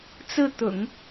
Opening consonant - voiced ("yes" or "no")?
no